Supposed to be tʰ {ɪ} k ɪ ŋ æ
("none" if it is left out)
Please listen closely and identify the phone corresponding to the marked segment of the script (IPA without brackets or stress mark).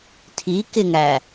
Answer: i